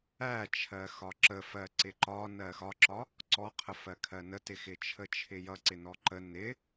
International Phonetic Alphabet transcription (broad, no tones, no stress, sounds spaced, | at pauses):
æ t͡ʃʰ ɜ x ɒ ǁ ə f ɜ ǀ ɪ ǃ ɒ n ɜ x ɒ ǁ ɒ | ǀ ɔ qʰ ə f ɜ kʰ ɜ n ə t ɪ x ɪ t͡ʃʰ ə t͡ʃʰ ɪ j ʌ ǀ ɪ n ɔ ǃ ə n ɪ